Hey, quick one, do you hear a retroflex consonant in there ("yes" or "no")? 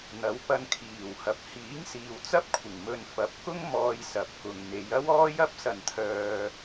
no